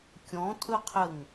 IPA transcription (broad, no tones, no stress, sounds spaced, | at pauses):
kʲ ɔ̃ tʼ ɵ qʰ ə ŋ